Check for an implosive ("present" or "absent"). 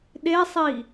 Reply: present